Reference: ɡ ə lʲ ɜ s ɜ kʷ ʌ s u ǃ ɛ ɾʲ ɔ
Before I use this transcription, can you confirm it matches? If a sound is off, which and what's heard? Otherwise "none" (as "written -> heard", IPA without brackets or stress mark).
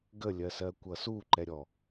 none